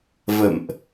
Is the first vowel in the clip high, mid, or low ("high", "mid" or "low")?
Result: mid